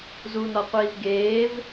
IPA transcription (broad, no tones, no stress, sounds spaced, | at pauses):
z u n ɒ qʷ iː v ɡ eː v